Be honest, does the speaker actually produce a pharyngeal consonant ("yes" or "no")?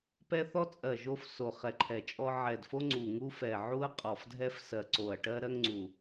yes